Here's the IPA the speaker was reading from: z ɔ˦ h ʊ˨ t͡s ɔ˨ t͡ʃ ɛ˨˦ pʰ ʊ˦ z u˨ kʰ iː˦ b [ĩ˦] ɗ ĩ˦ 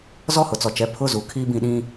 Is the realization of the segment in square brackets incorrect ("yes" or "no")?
yes